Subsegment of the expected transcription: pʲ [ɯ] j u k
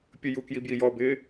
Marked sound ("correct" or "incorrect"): incorrect